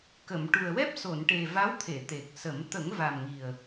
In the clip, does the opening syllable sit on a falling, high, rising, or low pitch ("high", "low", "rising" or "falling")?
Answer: low